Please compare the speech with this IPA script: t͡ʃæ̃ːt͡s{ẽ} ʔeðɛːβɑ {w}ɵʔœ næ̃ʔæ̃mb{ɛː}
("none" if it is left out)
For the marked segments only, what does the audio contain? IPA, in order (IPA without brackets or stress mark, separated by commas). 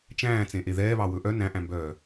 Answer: ẽ, w, œː